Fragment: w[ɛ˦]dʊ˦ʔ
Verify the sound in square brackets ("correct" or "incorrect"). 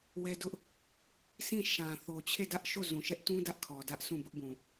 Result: correct